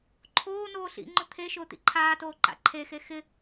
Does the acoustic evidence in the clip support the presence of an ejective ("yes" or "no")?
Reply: no